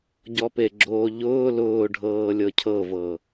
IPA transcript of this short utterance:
ɟ ɔ p e ɡ͡ǁ oː ʎ ʊː l ʊː ɖʱ ɤː lʲ ɤ cʰ ɤ v ɤ

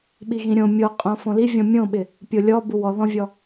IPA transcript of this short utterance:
ɓ i ɣ ĩ ɾʲ õ mʲ o qʼ õ f õ l i vʲ ɔ̃ mʲ õ ɓ ɪ | pʲ o lʲ ɔ b u w ɔ ð ɔ̃ vʲ ɔ

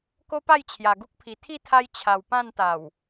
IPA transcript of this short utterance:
k o˦ p a˥˧ j t͡ɕʰ j a˨˩ ɡ u˦ k̚ pʰ i˨˩ t̪ʰ i˥˧ t̪ʰ a˧ j t͡ɕʰ a˨˩ w p ã˥˧ n t̪ a˨˩ w

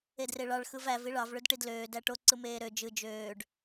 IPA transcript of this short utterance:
e d r e ɭ ɑ ɭ x ɯ v æ v i ɭ ɑ v ɭ ø d ʈ i d l øː d æ ʈ o ǀ ɯ m eː ɾ ø d͡ʒ ɯ d͡ʒ øː ɖ

